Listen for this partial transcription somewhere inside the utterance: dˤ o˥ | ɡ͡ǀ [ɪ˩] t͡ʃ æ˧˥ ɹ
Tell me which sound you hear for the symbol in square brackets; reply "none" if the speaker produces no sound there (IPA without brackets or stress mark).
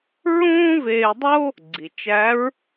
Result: i˩